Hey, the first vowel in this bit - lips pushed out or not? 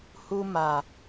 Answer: yes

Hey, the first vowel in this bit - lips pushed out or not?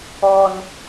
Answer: yes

